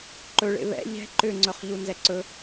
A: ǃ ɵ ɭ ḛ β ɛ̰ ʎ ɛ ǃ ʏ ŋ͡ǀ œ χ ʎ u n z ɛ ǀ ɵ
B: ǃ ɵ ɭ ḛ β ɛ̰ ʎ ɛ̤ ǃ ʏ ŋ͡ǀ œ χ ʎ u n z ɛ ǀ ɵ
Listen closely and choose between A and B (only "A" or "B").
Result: B